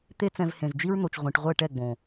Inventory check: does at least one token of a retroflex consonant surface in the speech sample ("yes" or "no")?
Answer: yes